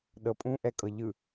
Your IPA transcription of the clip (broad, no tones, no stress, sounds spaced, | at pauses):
ɗ ɤ pʼ ũ ʔ ɛ kʼ ɤ ʎ ɯ